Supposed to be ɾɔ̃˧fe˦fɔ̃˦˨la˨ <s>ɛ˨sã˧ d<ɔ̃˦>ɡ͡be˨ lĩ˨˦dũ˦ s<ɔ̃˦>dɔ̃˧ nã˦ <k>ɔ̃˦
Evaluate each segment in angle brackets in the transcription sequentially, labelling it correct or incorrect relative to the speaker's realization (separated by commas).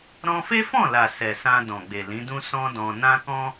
correct, incorrect, correct, correct